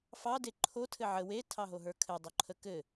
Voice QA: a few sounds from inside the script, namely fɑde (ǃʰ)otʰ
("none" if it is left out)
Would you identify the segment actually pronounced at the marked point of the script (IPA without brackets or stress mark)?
ǃʰ